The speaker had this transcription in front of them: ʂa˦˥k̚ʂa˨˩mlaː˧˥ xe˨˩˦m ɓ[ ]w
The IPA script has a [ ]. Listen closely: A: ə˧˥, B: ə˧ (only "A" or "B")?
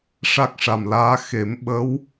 A